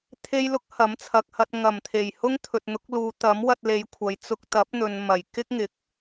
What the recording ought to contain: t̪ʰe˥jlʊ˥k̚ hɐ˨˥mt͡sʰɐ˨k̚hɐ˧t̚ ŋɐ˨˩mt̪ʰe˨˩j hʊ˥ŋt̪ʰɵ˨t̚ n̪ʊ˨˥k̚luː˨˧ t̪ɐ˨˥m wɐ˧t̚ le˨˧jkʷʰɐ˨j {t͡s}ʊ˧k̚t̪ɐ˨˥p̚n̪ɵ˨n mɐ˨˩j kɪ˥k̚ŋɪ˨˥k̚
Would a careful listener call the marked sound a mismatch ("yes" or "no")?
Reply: no